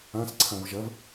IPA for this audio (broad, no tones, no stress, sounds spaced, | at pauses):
ã s ǀʰ ã v ʒ ɐ v